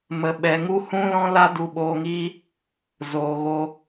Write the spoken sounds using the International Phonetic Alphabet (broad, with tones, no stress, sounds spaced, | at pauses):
m ə˨ ɓ ɛ˨ ŋ u˦ h ũ˦ l ɔ̃˦ l a˦ d u˧ ɓ oː˧ ŋ iː˦ | z oː˨ ɣ o˧